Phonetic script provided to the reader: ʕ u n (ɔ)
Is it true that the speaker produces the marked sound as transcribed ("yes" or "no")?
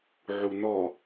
yes